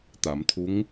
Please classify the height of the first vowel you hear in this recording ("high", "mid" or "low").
low